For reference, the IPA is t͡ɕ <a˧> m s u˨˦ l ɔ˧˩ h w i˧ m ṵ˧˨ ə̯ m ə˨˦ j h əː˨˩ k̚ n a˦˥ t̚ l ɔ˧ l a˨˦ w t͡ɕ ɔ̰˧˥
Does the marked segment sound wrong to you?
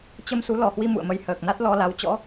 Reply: yes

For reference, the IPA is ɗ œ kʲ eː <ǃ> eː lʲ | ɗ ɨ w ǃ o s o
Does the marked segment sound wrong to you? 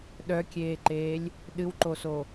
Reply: no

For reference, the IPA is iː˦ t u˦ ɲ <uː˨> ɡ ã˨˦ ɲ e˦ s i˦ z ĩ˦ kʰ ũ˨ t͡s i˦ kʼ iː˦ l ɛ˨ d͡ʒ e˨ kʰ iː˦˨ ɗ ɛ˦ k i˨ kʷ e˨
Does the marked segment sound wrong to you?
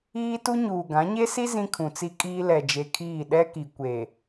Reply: no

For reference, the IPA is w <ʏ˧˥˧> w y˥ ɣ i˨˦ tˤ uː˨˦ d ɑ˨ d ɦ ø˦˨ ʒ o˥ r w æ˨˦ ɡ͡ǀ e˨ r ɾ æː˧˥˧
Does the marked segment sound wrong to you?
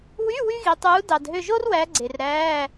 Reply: yes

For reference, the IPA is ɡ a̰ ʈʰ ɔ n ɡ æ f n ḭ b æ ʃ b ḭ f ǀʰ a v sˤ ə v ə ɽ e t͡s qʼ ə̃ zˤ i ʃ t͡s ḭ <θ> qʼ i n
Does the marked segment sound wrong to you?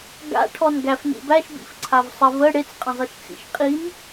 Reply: yes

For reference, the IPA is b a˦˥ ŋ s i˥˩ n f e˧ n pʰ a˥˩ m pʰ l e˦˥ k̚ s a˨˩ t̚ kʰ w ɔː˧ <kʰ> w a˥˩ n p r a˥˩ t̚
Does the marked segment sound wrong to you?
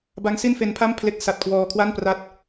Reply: no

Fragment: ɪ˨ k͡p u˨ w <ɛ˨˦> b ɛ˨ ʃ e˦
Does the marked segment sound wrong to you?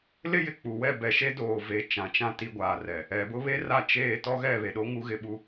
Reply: yes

